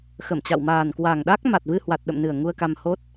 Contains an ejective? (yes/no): no